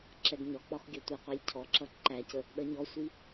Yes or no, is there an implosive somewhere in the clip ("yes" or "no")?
yes